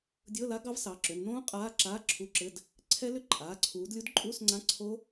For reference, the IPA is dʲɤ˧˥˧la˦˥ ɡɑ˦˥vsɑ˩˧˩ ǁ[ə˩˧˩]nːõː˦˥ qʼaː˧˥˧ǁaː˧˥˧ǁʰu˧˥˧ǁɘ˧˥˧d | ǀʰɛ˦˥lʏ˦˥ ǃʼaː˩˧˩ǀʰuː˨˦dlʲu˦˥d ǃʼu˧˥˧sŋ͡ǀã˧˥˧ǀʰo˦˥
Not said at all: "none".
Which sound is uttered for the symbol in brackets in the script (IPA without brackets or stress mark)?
ʏ˩˧˩